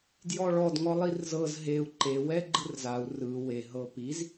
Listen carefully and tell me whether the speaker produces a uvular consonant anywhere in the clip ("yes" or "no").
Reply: no